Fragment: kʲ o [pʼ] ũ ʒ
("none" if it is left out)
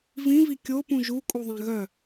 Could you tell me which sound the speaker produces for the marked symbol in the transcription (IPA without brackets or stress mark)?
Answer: p